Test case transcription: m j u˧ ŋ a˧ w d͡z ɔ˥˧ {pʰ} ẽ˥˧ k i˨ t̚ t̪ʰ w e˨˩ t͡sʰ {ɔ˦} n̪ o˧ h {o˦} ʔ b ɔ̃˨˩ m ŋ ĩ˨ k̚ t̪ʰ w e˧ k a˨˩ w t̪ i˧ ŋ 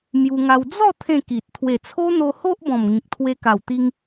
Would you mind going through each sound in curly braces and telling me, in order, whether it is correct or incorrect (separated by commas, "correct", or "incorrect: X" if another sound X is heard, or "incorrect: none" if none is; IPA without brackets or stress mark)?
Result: incorrect: t̪ʰ, incorrect: o˦, correct